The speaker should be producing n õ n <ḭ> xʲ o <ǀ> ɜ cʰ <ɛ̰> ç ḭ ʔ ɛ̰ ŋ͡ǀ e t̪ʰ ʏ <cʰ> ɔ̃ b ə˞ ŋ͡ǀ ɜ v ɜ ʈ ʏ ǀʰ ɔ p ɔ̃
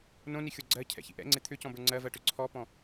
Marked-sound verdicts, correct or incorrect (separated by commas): incorrect, incorrect, correct, incorrect